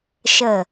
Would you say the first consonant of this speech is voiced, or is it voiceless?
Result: voiceless